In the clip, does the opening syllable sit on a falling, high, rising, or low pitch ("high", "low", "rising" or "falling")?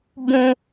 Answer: low